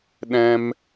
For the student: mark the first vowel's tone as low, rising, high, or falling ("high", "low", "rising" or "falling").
high